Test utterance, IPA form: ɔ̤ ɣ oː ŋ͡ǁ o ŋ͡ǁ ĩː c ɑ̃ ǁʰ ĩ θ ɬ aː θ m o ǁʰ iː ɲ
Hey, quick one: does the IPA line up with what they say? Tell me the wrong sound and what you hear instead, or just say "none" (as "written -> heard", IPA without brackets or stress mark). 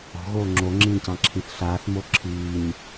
none